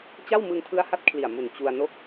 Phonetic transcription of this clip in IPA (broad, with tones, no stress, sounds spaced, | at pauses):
t͡ɕ a˥˩ w m ɯ˧ ŋ tʰ ɯ˦˥ a̯ h a˦˥ t̚ kʰ l i˨˩ a̯ m u˨˩ n t͡ɕ u˧ a̯ n o˥˩ k̚